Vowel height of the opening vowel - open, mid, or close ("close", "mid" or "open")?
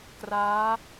open